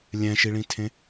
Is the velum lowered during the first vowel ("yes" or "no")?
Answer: yes